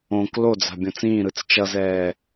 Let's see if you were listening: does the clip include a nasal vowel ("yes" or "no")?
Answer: yes